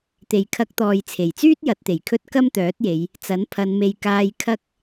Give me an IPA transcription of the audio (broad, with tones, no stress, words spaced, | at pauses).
t̪e˨˩jkʰɐ˧k̚t̪ɔː˨j t͡sʰe˨˩jt͡syː˥t̚ jɐ˨˥t̚t̪e˨˩jkʰɵ˥t̚ kɐ˥mt̪œː˨˥t̚je˨˧j | t͡sɐ˨˥npʰɐ˨˧nme˧j kaː˧j kʰɐ˥k̚